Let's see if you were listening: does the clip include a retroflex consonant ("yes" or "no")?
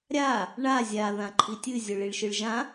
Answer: yes